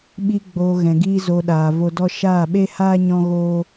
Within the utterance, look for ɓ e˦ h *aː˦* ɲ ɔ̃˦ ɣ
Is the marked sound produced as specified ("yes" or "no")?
yes